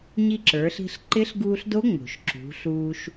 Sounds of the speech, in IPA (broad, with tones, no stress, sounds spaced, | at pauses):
ɲ i˧ ǁ ə˞˩˧ ɬ i̤˧ ɬ ǃ ɪ˧˥ ɬ ɡ uː˧ ɬ d o˧˥ ŋ͡m o̤˩ ʃ ǁ ṳ˩˧ ɬ uː˧ ʃ